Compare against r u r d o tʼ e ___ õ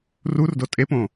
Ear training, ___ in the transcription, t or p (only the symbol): p